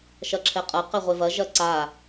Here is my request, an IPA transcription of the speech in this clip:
ʃ ɐ ǁʰ ɛ qʼ ɐ q ɛ ʁʷ e v ɐ ʒ ɐ ǀ a

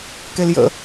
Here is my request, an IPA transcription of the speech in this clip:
k e l j ə̰

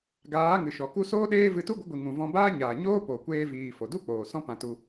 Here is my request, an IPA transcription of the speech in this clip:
ɡ aː˨˦ ŋ ɨ˨ ʃ ɔ˨ k u˦ s oː˦ ɗ eː˦ v ɨ˧ t u˦ ɡʷ ə˨˦ ɡʷ i˨ ŋ ũ˨ v ɔ̃˧ b aː˦ ɲ aː˨ ɲ oː˦ p o˨ kʷ eː˧ v iː˨ f o˨ d u˦ k͡p oː˨ s ɔ̃˦ p ã˧ t u˧

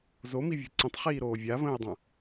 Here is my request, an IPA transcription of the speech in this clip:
z o m i vʲ ṳ ǀ ə̃ tˤ χ iː ɾ oː vʲ a v ə̃ː ɪ̯ dˤ ã

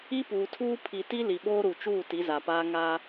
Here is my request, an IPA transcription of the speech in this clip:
i˦ p uː˨ tʰ uː˦ pʰ i˨ t i˦ l i˨ ɓ oː˦ ɾ u˨ t͡ʃ uː˦˨ t i˨˦ z a˨ p aː˦ ŋ a˦

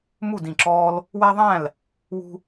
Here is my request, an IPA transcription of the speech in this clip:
m u˥˨ d ĩ˧˩ ǁ ɔː˦ l | w æ˦ ðˤ æ̃˥˨ l | w ṳ˦

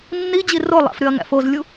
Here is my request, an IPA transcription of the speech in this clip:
nː i d͡ʑ i r o lˠ æ̰ f ɾ y ɐ̯ ŋ æ̰ f o z lʲ u

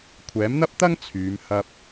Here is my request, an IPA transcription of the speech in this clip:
kʷʰ ɛː˨˥ m n̪ ɐ˥ p̚ t̪ ɐ˥ ŋ t͡sʰ yː˨˧ m h ɐ˧ p̚

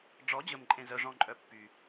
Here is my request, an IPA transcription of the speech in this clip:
ɖ͡ʐ ɔ˩˥ d͡ʑ ə˨˩ m ǃʼ ẽ˨˩ z œ˨˩ ʐ ɔ̃˨˩ ǃʼ œ˨˩ pː y˨˩

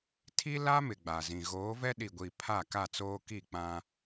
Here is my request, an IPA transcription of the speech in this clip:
tʰ i˦ l a˦ m ɪ˨ ɡ͡b a˨ z ĩ˨ ɣ oː˨˦ v ɛ˦ ɗ i˨ ɡʷ iː˨ pʰ a˦˨ k a˦˨ t͡s oː˦ k i˦˨ k͡p ã˦

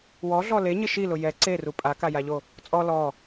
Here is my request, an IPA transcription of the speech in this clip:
w ɔ ɮ ɔ l e ɲ ɪ ʃ i l ʊ j ɛ ǀ e r u pʼ a k a j a ʎ o | t͡sʼ ɔ l ɔ

